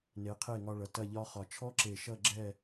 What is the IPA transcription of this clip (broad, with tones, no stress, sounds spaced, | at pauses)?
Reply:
n e˩˧ qʰ e˧˩ ŋ ɒ˧ ɭ ʌ˩˧ t ɐ˥˧ ʎ ɒ˥ χ ɒ˧ t͡ʃʰ ɔ˥ ǁ e˧˩ ʃ ʌ˥˧ ɡ͡ǁ ɛ˥˧